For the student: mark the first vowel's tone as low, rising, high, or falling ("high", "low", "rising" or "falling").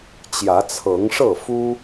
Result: rising